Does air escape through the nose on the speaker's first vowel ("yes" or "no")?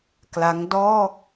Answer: no